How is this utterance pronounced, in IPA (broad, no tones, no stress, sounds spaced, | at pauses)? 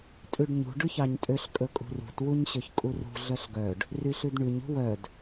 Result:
tʼ ʉ ɖ ɲ ṳ ɖ ʉ ç ɑ ɲ tʼ ø ɬ kʼ ɵ kʼ ṳ r ṳ t w u ɲ ɕ ø ç kʼ u r ṳ ɮ œ ɬ ɡ œ ɖ | r y ɬ ʉ d ɳ ʉ ɲ ṳ w œ d